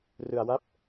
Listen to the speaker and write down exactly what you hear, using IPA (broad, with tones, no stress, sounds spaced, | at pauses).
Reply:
r ɯ˧ a̯ w a˦˥ p̚